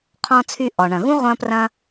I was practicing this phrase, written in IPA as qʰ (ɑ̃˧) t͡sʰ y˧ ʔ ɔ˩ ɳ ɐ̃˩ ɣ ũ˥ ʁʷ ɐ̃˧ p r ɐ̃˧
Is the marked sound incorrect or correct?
incorrect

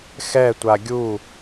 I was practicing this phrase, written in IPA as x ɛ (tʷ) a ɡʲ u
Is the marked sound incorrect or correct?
correct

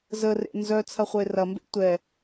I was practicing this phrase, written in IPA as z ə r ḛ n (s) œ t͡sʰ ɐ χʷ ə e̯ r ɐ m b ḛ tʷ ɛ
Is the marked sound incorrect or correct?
incorrect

